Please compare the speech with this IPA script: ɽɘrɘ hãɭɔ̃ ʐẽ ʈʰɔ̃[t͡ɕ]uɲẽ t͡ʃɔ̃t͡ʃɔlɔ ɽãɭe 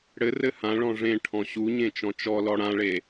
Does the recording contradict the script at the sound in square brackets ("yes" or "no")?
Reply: yes